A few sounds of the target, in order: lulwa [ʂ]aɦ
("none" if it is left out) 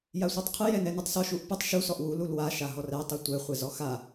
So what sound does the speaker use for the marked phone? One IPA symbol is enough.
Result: ʃ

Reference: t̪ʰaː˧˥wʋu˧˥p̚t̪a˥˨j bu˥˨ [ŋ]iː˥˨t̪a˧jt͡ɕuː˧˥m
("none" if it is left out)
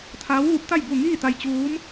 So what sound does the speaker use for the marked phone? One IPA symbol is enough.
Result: ŋ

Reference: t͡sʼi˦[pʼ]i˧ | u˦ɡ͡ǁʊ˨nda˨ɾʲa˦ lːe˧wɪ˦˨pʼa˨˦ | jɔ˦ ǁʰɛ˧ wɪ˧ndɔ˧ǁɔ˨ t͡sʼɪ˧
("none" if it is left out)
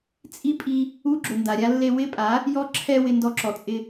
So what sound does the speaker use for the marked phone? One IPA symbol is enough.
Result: pʼ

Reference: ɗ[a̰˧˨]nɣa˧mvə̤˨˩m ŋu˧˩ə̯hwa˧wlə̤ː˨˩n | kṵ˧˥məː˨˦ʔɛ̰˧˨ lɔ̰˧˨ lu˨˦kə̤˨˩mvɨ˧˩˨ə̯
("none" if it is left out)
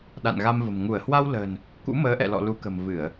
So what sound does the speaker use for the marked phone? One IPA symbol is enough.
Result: a̰˧˨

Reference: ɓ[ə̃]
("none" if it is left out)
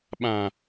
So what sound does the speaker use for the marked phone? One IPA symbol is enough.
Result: ã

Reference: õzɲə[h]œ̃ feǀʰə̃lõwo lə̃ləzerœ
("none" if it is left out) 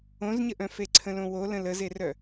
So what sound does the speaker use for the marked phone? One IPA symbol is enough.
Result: ʔ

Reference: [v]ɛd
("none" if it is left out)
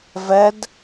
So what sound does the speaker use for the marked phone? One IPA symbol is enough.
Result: v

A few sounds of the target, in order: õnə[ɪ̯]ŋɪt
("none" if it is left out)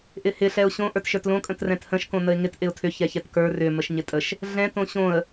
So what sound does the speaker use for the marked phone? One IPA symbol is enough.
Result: ɪ̯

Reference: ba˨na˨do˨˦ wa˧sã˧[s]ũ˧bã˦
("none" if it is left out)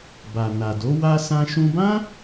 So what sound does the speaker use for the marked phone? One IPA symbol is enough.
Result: ʃ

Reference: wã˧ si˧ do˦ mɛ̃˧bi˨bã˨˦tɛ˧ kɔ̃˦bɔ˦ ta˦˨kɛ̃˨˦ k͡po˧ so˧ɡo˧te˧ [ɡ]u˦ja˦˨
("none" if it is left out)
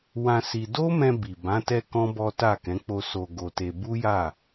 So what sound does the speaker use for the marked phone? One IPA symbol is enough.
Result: b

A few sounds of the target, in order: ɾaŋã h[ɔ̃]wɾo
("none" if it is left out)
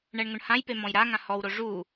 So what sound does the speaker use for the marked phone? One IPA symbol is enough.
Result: ɔ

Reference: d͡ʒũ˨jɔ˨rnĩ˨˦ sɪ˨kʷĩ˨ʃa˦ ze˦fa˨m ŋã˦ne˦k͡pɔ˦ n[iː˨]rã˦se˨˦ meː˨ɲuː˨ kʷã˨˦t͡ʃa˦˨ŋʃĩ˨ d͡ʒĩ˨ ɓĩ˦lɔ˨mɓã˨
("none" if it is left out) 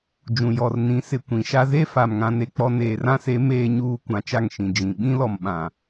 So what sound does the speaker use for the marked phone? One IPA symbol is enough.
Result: eː˨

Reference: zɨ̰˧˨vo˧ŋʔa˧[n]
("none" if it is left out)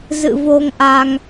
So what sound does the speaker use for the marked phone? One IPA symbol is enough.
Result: ŋ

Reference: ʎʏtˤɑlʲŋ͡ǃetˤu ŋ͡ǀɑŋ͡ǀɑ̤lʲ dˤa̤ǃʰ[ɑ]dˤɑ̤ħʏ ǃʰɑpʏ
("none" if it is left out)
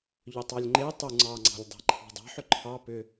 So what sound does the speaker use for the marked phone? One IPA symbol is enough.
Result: ɑ̤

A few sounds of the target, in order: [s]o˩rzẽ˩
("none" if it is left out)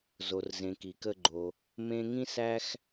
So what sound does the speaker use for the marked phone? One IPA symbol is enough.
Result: z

